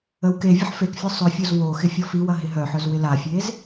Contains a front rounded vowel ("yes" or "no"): yes